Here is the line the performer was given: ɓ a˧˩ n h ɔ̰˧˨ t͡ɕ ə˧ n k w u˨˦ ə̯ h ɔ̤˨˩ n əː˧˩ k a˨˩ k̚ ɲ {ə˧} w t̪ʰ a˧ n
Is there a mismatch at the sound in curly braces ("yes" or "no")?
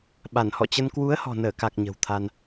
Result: yes